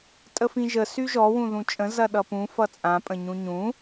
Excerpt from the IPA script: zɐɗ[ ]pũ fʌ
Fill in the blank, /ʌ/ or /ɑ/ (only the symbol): ʌ